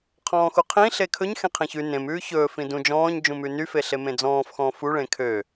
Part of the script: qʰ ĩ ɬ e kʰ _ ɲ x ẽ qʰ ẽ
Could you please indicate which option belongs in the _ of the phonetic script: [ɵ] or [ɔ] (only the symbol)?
ɵ